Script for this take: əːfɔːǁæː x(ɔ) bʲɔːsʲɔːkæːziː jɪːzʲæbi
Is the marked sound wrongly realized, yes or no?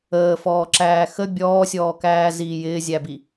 yes